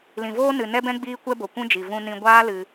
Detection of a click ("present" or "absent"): absent